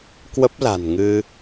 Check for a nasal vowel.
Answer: absent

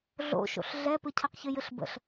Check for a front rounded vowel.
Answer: present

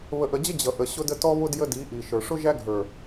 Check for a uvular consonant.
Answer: absent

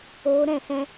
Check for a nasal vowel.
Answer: present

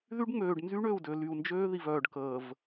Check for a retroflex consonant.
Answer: present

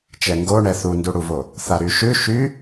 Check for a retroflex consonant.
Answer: present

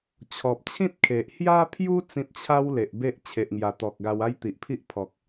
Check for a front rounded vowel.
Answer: absent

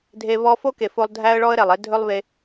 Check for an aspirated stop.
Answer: absent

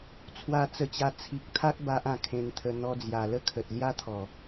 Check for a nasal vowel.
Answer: present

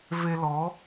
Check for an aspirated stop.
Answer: absent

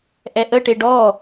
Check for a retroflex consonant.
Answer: present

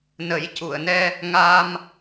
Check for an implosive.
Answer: absent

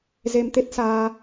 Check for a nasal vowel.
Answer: absent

